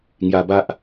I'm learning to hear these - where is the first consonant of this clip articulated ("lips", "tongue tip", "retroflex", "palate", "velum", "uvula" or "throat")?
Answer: velum